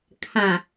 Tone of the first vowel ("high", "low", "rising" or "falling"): low